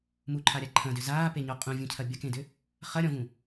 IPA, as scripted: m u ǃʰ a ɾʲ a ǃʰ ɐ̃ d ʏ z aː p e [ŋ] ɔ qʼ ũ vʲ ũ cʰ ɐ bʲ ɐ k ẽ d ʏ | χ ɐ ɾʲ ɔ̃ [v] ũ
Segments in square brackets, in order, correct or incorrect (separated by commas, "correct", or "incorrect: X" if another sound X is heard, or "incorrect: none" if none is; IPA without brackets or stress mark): incorrect: ɲ, correct